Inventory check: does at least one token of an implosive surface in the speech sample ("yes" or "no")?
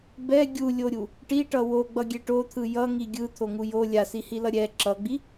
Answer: no